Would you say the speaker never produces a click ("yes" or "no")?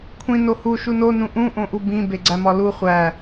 no